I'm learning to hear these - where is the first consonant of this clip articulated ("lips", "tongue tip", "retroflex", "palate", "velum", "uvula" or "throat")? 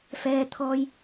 lips